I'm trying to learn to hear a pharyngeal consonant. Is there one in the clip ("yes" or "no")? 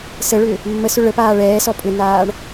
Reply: no